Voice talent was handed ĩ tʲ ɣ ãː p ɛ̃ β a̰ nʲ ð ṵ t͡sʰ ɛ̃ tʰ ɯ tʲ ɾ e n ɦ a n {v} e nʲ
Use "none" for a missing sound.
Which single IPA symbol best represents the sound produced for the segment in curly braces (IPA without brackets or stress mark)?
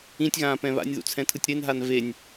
v